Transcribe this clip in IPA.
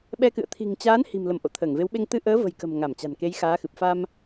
ɓɛ˧kɨ̰˧˨ə̯ t̪ʰi̤˨˩ŋt͡ɕaː˨˦n hi̤˨˩mlə˧˩m ʔo̰˧˨t̪ʰəː˧˩ŋve˨˦wɓe˧ŋ t̪ɨ˧ʔəː˨˦və̤˨˩jkə̤˨˩m ŋa˧˩mt͡ɕa̤˨˩n ke˨˦jxaː˨˦xɨ˨˩p̚ fa˧m

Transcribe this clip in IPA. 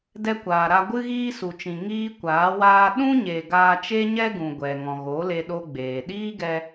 dɛ˧kʷaː˨ɾa˧ ɡʷɨ˦ɣiː˦su˨t͡ʃĩ˨ ŋiː˦kʷaː˨˦waː˦ ɗũ˦ɲe˨ ɡaː˦ t͡ʃe˦ɲɛ˦ɡũ˨ ɡʷɛ˨ ŋɔ̃˨ɣo˨˦le˧ ɗo˦ɡ͡beː˨ ɗiː˦ɡɛ˧

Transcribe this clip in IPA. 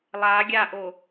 lˠa ɡʲaʔo

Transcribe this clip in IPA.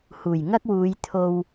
huː˨˩jŋɐ˥k̚wuː˨˧jt̪ʰo˧w

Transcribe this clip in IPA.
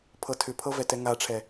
pʰɤtʰʏpʰɤ vɛtɛŋaʈ͡ʂʰɛ

